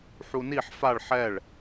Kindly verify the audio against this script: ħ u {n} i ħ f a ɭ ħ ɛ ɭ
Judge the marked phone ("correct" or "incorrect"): correct